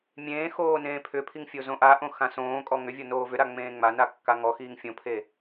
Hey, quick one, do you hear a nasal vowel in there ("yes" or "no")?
yes